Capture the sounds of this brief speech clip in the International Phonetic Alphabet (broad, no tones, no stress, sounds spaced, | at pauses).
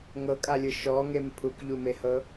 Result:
ŋ ɤ kʼ a lʲ ɯ ʃ ɔ ŋ e m pʰ u k ʎ u m e h ɤ